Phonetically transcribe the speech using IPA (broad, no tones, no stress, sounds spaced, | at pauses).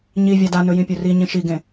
ɲ i vʲ a d a n ɵ j ĩ pʲ ɵ r i ɲ ĩ ʃ i ɡ ẽ